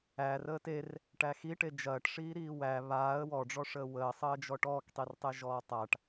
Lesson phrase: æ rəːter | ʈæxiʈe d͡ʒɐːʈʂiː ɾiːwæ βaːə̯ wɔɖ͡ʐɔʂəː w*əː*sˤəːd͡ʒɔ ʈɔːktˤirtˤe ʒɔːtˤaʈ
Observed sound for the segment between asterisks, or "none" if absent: əː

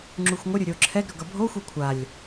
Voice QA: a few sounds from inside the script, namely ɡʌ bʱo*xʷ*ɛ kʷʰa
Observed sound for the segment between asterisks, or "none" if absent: xʷ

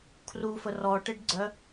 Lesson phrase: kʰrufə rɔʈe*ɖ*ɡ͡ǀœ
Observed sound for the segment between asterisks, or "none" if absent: ɖ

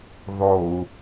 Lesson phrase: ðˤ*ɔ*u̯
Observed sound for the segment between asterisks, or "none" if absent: o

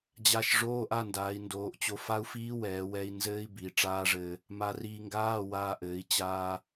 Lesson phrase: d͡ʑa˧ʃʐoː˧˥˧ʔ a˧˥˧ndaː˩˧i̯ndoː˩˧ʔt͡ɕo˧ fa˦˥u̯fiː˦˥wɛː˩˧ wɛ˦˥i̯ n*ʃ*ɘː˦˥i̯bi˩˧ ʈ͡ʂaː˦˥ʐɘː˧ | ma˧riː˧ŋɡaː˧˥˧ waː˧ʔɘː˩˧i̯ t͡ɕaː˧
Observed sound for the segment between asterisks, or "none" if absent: z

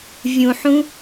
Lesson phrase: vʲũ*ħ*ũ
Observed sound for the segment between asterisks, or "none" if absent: ħ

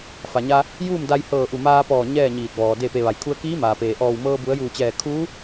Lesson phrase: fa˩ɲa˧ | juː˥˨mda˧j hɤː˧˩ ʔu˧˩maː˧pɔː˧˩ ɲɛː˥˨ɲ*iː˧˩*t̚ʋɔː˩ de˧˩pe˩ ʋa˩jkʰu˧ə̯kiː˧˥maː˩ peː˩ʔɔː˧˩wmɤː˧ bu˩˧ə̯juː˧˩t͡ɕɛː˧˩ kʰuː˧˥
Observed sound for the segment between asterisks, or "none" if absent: iː˧˩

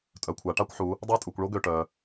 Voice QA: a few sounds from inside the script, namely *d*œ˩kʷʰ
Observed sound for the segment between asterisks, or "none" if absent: tʼ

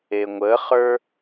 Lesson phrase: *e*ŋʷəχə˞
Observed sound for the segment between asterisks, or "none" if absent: e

